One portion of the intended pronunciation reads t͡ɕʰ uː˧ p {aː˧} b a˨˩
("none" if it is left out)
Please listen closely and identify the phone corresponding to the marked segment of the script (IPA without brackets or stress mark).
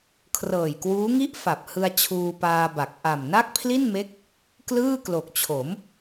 aː˧